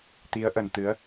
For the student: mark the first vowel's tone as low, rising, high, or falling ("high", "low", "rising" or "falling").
rising